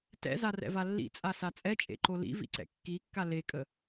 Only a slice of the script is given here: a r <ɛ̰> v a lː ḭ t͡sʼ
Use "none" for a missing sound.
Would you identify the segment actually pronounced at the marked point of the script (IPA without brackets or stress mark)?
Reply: ɛ̰